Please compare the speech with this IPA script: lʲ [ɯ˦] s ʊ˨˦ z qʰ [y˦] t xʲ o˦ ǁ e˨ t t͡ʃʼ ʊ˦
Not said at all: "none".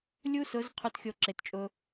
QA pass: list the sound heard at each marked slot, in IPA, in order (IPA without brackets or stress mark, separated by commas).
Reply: u˦, u˦